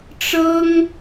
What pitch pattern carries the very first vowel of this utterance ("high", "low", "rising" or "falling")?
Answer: high